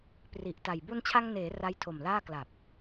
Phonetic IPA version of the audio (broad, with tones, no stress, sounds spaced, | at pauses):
p r i˨˩ ʔ t a˨˩ j b u˧ n t͡ɕʰ a˧ ŋ n eː˩˦ r a˦˥ j tʰ o˨˩ m l aː˥˩ k l a˨˩ p̚